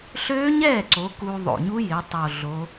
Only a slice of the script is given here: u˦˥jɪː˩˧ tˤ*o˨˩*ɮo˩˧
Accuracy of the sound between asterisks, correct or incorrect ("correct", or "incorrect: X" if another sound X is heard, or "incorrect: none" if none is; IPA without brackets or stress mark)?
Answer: correct